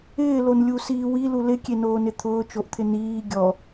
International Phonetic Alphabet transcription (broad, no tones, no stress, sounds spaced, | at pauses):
ɪː l o n lʲ u s iː w i l u l ɪ kʲ e n oː n ɪ t̪ʰ ʊː t͡ʃ o ʔ t̪ʰ ɪ n iː ɡʲ ɔ